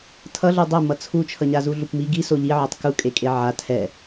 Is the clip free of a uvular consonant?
yes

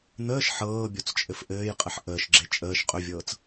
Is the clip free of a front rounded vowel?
yes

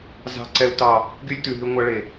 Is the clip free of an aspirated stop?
yes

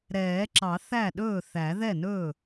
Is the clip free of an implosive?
no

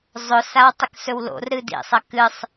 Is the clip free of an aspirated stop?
yes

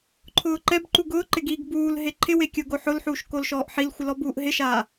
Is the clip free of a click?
no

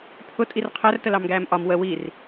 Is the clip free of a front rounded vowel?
yes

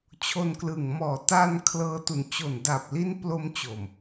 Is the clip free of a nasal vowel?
yes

